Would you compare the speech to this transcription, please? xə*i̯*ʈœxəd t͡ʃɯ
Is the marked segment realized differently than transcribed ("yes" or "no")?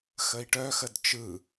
no